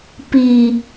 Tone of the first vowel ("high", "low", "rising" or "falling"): low